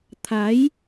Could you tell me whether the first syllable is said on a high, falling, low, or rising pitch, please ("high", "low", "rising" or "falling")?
rising